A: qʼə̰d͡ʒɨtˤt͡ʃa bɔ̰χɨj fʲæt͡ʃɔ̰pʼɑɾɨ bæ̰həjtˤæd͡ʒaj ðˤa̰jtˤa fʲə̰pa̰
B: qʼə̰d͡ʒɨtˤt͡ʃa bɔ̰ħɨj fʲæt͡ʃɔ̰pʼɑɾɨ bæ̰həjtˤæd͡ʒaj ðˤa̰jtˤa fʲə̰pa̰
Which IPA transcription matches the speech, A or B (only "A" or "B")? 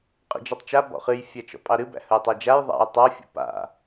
A